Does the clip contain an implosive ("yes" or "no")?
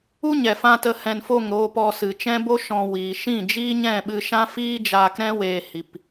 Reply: yes